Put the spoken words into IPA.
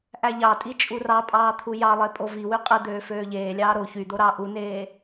ʔ æ ʎ ɑ tʼ i t͡ʃʼ u r ɑ pʼ ɑː t̪ʰ u j ɑ lˠ e pʼ o v i w y qʼ ɯ d̪ øː f øː ʎ eː lʲ ɑː ɾ o ç y d̪ o ɾ ɑ ʔ u n eː

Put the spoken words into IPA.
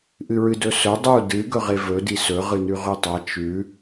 ʔ ɨ ɹ ɨ d ɵ s ɵ dˤ u d ɨ ɡ ɵ ʁ e v ɵ d i s ɵ ʁ ɨ n ʉ ʁ ʉ tˤ a t͡ʃ ʉ

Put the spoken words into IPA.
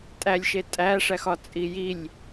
tʼ æ lʲ ʃ e tʼ æ ʂ æ x ɒ t͡sʼ i j i lʲ

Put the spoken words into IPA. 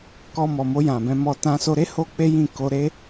k ɔ˧ m ɔ˨ m o˧ j ã˨ b ɛ̃˧ m ɔ˧ t ã˧ s o˧ ɾ e˦ h o˦ k͡p e˦ j ĩ˦˨ k o˧ ɾ e˦

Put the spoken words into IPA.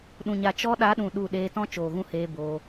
ɗ ũ˨ ɲ a˨ t͡ʃ ɔ˧ ɗ a˨˦ ɗ ũ˨ ɗ u˦˨ ɗ eː˧ t ɔ̃˦ t͡ʃ oː˨ ɣ ũ˦ h eː˧ b oː˧

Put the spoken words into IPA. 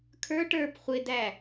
kʰ ə˞ ʈ ə˞ p χʷ ɪ d æ

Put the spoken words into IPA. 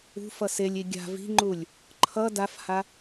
ṳ f ʌ s e lʲ i ɡʲ a̤ v i̤ ŋ͡ǃ u lʲ | ǃʰ ʌ d a f h a

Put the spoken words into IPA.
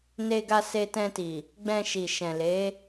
n e˧ ɡ a˧ s e˧ t ɛ̃˧ t i˨ | ɡ͡b ɛ̃˧ ʃ i˨ ʃ ɛ̃˨ l e˨˦

